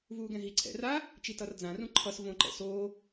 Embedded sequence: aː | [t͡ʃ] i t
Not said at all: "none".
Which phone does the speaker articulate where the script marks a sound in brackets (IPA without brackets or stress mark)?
t͡ʃ